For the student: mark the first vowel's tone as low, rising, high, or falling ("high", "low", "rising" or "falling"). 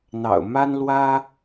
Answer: low